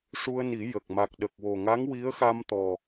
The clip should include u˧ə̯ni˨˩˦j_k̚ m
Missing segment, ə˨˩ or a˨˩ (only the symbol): ə˨˩